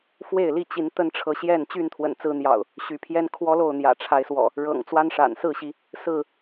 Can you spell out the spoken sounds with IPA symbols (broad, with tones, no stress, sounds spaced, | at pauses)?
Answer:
f w e˥˨ ɪ̯ l i˥˨ t͡ɕ i˨˦ n t̪ ə˦ n ʈ͡ʂʰ ɤ˨˦ ɕ j ɛ˥˨ n t͡ɕ y˥˨ n t̪ʰ w ə̰˨˩ n t͡s ɹ̩˨˦ n̪ j ɑ̰˨˩ ʊ̯ | ɕ y˨˦ pʰ j ɛ˦ n kʰ w ɔ˦ l o˥˨ ʊ̯ n̪ j ä̰˨˩ ʈ͡ʂʰ a˨˦ ɪ̯ s w ɔ̰˨˩ | ɻ ɤ̰˨˩ ŋ t͡s w a˦ n ʂ a̰˨˩ n s ɹ̩˥˨ ɕ i˨˦ | s ɹ̩˥˨